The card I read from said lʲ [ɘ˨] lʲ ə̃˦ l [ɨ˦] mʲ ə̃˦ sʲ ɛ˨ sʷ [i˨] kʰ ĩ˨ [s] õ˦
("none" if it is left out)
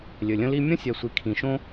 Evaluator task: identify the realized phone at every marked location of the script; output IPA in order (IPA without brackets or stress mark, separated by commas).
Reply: ɘ˨, i˦, i˨, ʃ